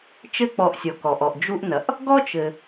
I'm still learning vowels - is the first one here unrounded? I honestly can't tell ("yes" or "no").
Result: yes